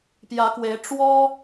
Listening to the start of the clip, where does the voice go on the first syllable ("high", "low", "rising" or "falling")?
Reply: rising